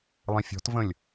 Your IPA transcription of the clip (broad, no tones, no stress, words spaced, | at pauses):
lˠĩfʲɔ̤tvə̃lʲ